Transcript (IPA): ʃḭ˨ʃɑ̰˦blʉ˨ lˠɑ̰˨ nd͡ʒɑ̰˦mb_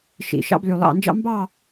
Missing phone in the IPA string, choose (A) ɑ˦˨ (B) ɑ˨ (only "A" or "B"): A